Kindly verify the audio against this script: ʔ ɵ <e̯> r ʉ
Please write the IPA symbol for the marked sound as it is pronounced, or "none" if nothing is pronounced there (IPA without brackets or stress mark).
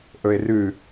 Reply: e̯